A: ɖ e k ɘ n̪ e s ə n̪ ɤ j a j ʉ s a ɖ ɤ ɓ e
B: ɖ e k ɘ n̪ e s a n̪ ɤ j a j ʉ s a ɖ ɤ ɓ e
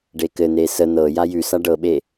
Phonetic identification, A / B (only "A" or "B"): A